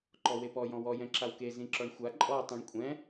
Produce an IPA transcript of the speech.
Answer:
ǃ ɔ w e p ɔ j ɔ̃ w ɔ j ɛ̃ ǁ a w k e z ĩ ǁ ɔ ɳ xʷ a ǃʼ ɔ tˤ ĩ ɳ kʷʼ ɛ̃

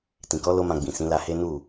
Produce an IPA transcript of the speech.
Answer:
t ĩ˨ k ɔ˨˦ l o˦ m ã˧ ɡ͡b ĩ˨ s ĩ˨˦ l a˧ h e˦ n u˦˨

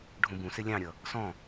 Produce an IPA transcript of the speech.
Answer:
ɖʱ ũ b ũ s ɪ lʲ ɑ̃ ɾʲ ʌ | s ɔ̃

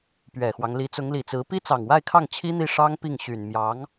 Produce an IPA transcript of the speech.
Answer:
p ɥ ɛ˨˩ x w ɑ˦ ŋ l i˧˥ t͡s ʊ˧˥ ŋ l i˨˩ t͡s ɹ̩˧˥ p i˥ t͡s ɑ˨˩ ŋ w a˥˧ ɪ̯ kʰ ɑ˥˩ ŋ t͡ɕʰ i˥ n̪ i˥˩ ʂ ɑ˥ ŋ p i˥˩ ŋ ɕ y˨˩ n m j ɑ˧˥ ŋ

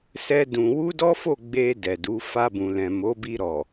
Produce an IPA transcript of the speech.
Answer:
s ɛ˦ d ũ˧ w u˦ d ɔ˦ f o˦˨ ɡ͡b e˧ d ɛ˨ d u˨˦ f a˧ b ũ˨ l ɛ̃˨ m o˨˦ b i˧ ɾ ɔ˨

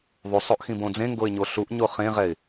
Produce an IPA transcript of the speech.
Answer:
ðˤ u sˤ o ʔ x ĩ b õ d͡z ẽ ŋ ɡ o ɪ̯ ɲ o ɬ u ʔ ɲ o χ ẽ ʁ ɛ ɪ̯

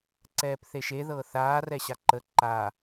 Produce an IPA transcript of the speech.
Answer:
ǀ ɛː p θ e ʃ e ð ɤː θ aː r ɛ ɕ a ǃ ə ǃ a

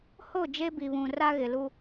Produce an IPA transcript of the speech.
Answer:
h o˦˨ d͡ʒ e˦ b i˨ β ũ˨ r a˦ ɣ ɪ˨ l u˦

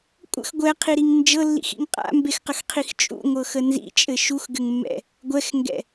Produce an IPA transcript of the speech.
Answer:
kʷʼ ə̰ x ɡʷ ɛ qʰ i ɾ i ŋ n d͡ʒ ɤ lː ḭ x ḭ ŋ qʼ a̰ m b e x q ə x qʰ i x t͡ʃʼ ṵ ŋʷ ɤ x ə n z ḭ t͡ʃʼ ɘ ʃ u x ɡ ɘ ŋ mː ɛ̰ | ɡʷ ɛ x ŋ ɡ ɛ̰

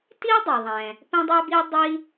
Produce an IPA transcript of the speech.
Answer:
t i˥ dˤ e˩ ðˤ ɛ̃˩ | p ɛ̃˥ dˤ ɛ˥ b i˥ dˤ i˥

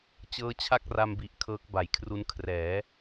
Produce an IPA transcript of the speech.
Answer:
t͡ɕ ɤː˦˥ t͡ɕʰ a˥˩ k̚ r a˧ m b i˨˩ ʔ kʰ ɤː˦˥ k̚ b a˨˩ j kʰ r u˦˥ n kʰ r ɛː˩˦

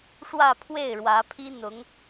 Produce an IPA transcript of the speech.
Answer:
ʂ w ä˥˧ pʰ w e˥˩ ɪ̯ ɻ w ä˧˥ pʰ i˥ n̪ ʊ˧˥ ŋ

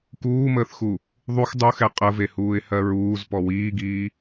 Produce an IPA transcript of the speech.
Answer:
k uː m əː θ x u | ðˤ u x dˤ u x ɛ qʼ ə v e h uː ɪ̯ h ɜ ɹ uː z p ɔ w iː ɡ iː

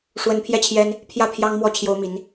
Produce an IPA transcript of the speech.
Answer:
ʂ w ə˧˥ n pʰ j ɛ˥˩ t͡ɕʰ j ɛ˥ n | pʰ j ä˥˩ pʰ j ɑ˥ ŋ m w ɔ˥˩ t͡ɕʰ j o˥ ʊ̯ m i˧˥ n

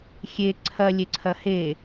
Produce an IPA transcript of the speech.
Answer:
xʲ e ǀʰ ɐ lʲ e ǀʰ ɐ h e

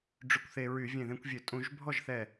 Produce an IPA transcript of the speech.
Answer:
ɖ͡ʐ y˧˩ kʷ θ e˧ ɹ y˧˩˧ vʲ ẽ˧˩ ð ẽ˧ kʷ vʲ ø˧˩˧ tʼ ũ˧˩˧ ʒ bʱ ɔ˥˩ ʒ θ ɛ˧˩

